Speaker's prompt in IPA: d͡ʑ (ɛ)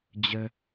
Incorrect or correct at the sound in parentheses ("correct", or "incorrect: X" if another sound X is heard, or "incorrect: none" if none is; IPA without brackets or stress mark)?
incorrect: ə